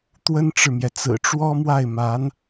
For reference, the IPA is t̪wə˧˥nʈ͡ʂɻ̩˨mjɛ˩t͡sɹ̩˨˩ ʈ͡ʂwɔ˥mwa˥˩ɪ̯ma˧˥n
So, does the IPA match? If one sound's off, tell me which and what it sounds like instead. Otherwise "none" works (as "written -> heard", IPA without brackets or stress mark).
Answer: ə˧˥ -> ə˥